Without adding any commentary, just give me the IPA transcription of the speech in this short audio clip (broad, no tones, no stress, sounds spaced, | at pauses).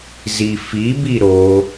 z i f i b i ɾ o